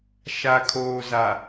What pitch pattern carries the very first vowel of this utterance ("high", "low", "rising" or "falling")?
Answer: low